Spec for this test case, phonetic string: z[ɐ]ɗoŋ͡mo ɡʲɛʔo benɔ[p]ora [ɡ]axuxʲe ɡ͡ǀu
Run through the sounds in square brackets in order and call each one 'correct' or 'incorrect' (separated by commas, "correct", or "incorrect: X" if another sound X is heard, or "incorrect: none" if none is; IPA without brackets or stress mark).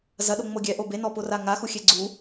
correct, correct, incorrect: ŋ